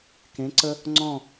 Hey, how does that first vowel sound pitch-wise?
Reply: rising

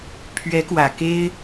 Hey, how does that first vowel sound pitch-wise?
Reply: rising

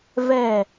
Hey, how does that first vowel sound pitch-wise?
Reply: falling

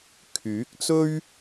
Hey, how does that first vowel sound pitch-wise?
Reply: rising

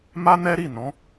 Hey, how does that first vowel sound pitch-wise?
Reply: high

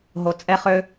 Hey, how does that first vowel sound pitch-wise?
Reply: low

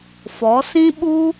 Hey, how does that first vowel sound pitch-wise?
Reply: rising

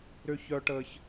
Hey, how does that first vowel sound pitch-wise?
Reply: low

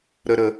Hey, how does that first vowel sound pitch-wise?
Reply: low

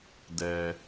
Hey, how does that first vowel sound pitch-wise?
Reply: low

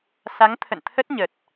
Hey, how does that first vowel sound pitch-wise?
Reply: rising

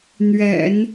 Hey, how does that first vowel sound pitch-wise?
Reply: low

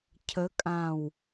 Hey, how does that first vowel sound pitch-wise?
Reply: rising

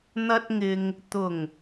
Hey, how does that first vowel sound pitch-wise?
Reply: high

